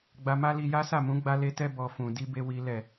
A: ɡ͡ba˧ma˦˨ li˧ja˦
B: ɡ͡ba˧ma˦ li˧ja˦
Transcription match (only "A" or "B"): B